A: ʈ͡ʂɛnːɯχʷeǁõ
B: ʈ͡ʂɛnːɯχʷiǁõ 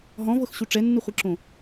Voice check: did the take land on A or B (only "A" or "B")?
B